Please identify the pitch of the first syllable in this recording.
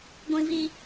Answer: high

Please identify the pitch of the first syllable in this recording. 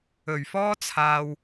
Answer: low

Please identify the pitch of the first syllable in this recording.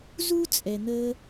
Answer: high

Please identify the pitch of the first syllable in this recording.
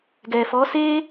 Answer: low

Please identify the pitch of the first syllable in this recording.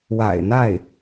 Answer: low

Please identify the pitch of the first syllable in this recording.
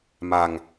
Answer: low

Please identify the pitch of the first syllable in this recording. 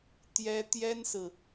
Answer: high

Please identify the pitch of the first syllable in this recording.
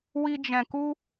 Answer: high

